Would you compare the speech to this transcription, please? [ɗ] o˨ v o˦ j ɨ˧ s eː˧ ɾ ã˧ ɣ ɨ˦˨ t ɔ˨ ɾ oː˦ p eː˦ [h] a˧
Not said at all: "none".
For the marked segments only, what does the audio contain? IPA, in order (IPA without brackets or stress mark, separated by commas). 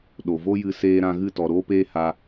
ɗ, h